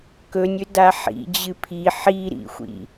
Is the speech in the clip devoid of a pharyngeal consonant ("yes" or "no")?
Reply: no